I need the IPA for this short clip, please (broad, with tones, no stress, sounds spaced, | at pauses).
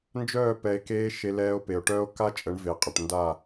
n d͡ʒ œː˦˨ p ɛ˧ e̯ k eː˦ ʃ e˧ l ɛː˧ o̯ p e˨ o̯ ʈ œː˦ o̯ k a˦ t͡ʃʼ ə˨˦ ɳ v e˨ qʼ ə˨ ʈ n d a˦˨